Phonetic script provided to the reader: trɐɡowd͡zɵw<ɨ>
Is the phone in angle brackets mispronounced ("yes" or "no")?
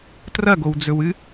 no